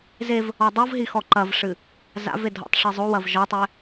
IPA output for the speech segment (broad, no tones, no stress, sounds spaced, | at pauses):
z e v | ɔ dˤ o v ɦ i x ɔ ǃ ɐ v ʂ ɨ | z a̰ v e dʱ ɔ̰ tˤ ʂ ɘ zˤ o w ɐ v ʒ ɔ tˤ ɛ